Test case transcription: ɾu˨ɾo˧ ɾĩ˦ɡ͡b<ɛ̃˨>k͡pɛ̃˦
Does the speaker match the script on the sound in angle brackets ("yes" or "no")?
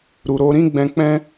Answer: no